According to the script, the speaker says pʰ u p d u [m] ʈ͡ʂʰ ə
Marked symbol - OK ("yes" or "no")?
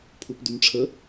yes